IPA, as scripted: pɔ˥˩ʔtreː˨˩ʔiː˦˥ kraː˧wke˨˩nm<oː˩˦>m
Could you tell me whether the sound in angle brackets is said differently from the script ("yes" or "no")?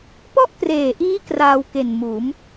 yes